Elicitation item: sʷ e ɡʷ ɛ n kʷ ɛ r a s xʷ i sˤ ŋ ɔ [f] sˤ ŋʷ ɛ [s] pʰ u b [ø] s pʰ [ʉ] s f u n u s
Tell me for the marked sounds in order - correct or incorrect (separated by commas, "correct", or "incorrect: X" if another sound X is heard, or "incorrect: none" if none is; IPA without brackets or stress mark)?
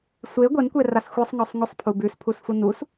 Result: incorrect: none, incorrect: sˤ, incorrect: ʉ, incorrect: u